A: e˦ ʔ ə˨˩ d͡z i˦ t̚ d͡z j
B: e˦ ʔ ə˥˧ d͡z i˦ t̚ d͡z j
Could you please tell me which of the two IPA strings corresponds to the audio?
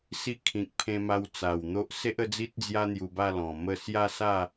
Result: B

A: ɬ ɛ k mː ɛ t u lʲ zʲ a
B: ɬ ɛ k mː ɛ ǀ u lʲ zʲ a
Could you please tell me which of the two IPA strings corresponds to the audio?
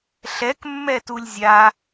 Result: A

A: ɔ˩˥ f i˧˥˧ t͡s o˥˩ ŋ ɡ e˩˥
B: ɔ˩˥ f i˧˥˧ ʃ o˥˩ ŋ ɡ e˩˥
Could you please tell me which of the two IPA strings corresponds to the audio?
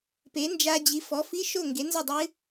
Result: B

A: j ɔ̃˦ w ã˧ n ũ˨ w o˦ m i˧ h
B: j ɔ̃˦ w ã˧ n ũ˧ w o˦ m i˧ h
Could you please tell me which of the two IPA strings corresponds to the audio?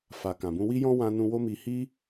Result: B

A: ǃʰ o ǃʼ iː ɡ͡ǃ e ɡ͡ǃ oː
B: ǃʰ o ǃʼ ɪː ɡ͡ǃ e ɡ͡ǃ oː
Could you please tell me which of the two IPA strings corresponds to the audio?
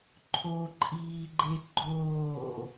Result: A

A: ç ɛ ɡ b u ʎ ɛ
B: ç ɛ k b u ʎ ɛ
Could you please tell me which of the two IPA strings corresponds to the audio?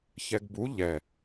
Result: A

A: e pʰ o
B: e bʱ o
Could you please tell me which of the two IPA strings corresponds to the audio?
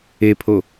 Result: A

